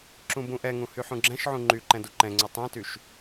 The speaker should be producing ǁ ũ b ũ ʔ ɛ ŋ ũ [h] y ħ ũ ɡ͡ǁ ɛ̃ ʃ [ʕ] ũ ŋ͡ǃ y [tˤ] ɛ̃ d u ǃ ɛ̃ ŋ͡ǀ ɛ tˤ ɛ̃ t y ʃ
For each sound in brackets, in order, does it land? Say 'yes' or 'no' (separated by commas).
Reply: yes, yes, no